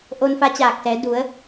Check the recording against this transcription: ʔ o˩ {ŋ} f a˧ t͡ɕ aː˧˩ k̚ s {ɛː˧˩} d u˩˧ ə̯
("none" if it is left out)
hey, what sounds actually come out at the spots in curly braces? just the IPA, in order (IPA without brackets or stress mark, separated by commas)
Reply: n, ɛː˩˧